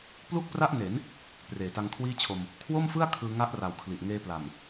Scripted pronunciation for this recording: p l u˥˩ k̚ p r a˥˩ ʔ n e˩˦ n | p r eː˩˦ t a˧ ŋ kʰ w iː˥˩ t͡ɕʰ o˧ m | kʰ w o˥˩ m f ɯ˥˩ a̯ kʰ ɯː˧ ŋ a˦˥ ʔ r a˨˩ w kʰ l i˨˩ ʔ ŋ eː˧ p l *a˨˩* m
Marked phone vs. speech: correct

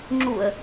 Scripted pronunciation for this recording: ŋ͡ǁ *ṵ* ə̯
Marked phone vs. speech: incorrect: u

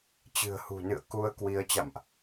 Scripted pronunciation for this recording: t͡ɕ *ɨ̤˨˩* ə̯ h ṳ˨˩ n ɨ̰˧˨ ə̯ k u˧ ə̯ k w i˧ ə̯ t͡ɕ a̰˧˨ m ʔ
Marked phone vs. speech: correct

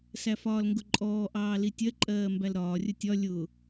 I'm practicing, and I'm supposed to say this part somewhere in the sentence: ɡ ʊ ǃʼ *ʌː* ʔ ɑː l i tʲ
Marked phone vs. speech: incorrect: ɔː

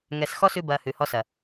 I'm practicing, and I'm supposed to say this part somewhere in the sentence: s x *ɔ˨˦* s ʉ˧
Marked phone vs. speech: incorrect: ɔ˦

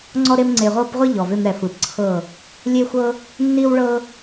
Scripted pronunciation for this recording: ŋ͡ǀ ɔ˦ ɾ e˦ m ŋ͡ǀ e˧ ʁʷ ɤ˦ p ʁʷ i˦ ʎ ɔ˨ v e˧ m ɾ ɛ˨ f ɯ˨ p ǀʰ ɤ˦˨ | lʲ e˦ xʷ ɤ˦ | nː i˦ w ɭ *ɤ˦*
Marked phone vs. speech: correct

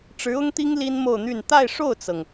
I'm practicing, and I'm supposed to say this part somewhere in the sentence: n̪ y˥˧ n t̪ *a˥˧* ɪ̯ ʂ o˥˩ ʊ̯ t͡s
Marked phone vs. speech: correct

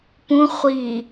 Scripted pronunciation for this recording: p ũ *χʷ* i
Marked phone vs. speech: correct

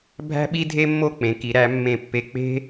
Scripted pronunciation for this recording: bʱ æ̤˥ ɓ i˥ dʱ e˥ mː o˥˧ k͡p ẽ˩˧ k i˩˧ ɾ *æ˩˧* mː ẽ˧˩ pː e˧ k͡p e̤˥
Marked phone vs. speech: correct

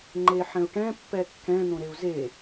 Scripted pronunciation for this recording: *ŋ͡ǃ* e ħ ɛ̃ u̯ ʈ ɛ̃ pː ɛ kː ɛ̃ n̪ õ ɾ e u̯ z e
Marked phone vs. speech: correct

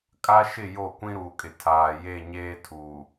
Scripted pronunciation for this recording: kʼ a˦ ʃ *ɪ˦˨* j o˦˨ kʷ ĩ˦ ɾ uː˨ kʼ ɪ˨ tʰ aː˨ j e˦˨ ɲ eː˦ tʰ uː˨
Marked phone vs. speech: correct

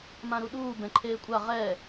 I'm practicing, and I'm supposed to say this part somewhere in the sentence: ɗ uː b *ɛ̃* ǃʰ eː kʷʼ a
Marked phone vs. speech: correct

